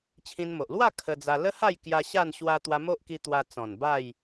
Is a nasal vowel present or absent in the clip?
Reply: present